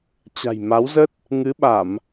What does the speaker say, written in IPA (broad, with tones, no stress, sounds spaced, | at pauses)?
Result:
t͡ɕ a̤˨˩ j m a˨˦ w z ə˦˥ t̚ | ŋ ɨ˨˦ ɓ a˧˩˨ m